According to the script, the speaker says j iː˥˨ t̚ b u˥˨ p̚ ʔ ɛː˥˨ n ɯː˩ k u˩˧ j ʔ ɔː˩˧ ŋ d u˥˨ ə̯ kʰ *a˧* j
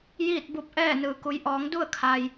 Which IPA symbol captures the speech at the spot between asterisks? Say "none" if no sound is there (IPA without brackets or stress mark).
a˩